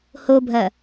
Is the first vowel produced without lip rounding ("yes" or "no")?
no